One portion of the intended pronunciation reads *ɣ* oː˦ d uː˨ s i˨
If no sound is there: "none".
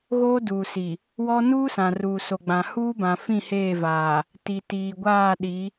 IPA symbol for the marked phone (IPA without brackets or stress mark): ɣ